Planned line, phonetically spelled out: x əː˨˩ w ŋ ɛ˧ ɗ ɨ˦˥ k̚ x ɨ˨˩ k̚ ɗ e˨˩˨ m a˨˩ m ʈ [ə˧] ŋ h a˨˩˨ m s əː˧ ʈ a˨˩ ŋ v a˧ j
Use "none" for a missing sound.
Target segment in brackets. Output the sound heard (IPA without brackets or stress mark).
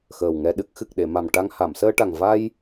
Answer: a˧